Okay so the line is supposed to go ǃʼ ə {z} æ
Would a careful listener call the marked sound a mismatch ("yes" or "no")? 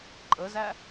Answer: no